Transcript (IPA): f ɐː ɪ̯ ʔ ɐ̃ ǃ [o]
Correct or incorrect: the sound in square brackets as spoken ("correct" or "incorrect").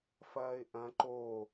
correct